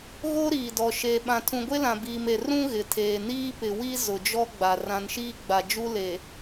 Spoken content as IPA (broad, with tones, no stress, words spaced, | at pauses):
ɣo˦ ɾiː˨dɔ˨ ʃeː˨ɓã˨ tʰũ˨ɡʷe˦lã˨ biː˨me˨ rũ˦ ɣɪ˨tʰeː˨ niː˦pɪ˨wi˦ zʊ˨d͡ʒɔ˦ɡ͡ba˨ rã˨nʃiː˦ɡ͡ba˨d͡ʒu˦ le˨